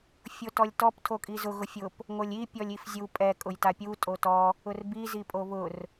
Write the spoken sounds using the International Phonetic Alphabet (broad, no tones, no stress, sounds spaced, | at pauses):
fʲ o t ɔ lʲ t ɔ p tʰ o kʼ i z ʊ ɣ ʊ fʲ ʊ p | ŋ o lʲ i pʲ ɔ lʲ i f zʲ u pʼ ɛ kʼ ʊ j t a pʲ u tʼ o t ɔ | ʊ r b i z i pʼ o β ʊ r